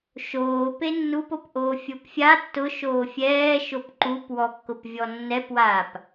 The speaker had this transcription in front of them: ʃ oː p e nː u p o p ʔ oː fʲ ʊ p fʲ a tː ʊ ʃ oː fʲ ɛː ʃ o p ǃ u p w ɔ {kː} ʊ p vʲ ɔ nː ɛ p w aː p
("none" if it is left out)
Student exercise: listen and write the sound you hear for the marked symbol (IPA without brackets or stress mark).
kː